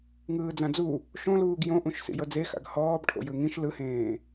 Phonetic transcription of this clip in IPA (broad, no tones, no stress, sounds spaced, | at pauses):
ŋ ɯː d͡z ã d͡z u | ʃ õ l uː ɡ j õ ʔ ũ ʃ s ḭ j ɤ d͡z e x a̰ ɡ h ɔː b ʈʰ o̰ j ɯ ŋ ĩ ʃ l ɯ h ẽː